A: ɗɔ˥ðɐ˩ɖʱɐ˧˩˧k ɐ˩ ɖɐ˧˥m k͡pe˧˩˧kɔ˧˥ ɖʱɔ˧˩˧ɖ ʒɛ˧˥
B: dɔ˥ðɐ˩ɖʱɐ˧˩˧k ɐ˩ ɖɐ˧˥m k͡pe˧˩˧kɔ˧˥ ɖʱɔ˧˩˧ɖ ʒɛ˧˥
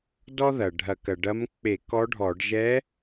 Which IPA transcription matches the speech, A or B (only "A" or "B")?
B